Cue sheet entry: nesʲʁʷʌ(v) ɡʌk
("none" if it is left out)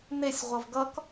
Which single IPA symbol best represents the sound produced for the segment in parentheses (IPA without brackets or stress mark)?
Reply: v